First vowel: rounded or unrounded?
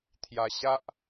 unrounded